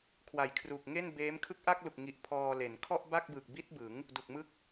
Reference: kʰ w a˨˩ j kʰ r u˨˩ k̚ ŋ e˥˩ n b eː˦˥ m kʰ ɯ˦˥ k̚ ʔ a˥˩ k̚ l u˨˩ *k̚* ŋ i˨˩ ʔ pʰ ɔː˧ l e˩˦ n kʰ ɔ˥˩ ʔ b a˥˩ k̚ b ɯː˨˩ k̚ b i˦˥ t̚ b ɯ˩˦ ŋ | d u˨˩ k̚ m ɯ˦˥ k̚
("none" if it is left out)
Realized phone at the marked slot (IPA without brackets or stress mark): k̚